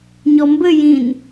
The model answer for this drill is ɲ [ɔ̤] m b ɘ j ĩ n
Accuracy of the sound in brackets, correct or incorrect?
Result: incorrect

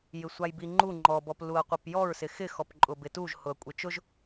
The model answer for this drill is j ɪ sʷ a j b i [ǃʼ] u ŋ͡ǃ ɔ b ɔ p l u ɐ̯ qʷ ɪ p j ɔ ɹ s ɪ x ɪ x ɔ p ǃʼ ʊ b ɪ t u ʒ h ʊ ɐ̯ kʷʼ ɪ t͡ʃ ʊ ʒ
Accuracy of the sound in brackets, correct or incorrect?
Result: incorrect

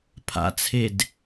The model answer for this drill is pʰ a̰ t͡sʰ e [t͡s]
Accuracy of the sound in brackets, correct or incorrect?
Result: incorrect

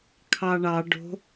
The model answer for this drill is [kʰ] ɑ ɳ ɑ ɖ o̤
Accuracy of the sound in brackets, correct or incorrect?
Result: correct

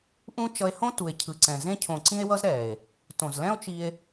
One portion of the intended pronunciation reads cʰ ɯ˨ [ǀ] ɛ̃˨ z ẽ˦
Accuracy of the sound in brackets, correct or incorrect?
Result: correct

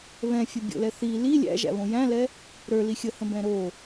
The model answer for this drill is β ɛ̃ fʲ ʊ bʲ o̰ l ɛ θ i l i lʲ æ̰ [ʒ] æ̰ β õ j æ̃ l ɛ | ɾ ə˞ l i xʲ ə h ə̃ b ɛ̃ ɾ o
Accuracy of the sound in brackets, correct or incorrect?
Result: correct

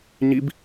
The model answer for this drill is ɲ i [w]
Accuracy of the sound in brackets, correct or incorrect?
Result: incorrect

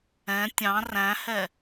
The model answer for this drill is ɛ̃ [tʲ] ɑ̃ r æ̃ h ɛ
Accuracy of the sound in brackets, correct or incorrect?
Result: correct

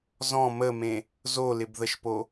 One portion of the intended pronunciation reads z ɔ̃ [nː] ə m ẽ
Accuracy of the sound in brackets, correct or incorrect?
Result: incorrect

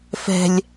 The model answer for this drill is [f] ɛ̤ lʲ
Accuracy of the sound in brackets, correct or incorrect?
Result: correct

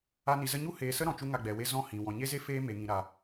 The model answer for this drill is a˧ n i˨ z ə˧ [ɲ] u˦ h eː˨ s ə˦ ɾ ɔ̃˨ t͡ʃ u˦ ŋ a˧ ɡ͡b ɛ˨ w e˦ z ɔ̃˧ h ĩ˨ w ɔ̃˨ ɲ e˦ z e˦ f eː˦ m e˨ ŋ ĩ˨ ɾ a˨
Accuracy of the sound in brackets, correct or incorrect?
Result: correct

